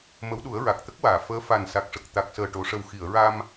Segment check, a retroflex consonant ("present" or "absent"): present